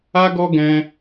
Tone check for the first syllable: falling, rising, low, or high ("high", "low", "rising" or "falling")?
high